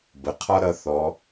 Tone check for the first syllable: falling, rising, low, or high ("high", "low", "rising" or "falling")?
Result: low